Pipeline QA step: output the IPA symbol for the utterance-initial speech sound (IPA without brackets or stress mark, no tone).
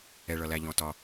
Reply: ɛ